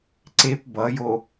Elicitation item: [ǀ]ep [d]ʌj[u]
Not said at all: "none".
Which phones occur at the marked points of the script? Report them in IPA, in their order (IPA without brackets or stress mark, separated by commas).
ǀ, b, o